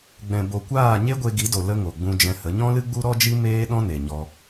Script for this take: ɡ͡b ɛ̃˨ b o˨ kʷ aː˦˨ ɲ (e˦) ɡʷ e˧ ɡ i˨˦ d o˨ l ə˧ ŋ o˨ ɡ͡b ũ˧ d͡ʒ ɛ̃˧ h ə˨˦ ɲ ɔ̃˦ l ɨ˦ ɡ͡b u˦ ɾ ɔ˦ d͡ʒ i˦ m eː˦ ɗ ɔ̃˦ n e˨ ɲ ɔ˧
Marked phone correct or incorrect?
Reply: correct